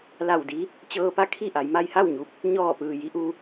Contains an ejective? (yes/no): no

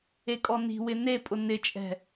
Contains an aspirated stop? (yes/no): no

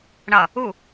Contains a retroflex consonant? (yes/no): yes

